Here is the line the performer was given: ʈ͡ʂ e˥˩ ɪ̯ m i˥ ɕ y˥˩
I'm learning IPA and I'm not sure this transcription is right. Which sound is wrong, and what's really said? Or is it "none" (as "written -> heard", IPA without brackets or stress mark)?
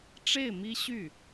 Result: none